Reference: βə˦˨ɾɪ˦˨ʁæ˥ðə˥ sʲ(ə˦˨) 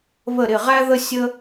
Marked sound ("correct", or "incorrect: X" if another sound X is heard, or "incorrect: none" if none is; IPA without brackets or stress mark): incorrect: ə˥